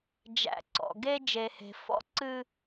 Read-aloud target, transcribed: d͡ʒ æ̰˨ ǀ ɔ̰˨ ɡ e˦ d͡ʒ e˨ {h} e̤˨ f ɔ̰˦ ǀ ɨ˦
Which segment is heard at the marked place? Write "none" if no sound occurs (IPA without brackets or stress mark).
h